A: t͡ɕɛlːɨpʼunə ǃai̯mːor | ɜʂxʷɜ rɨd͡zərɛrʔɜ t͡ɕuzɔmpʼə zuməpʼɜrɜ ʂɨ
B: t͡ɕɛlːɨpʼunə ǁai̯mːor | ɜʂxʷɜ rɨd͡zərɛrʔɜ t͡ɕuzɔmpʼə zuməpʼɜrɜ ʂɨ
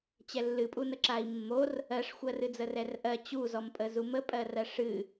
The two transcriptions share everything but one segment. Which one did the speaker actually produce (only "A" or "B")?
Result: B